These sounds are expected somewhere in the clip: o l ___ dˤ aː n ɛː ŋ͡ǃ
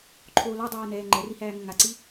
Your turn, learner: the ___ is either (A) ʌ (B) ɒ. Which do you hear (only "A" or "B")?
B